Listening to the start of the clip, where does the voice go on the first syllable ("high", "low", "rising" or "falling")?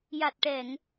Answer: low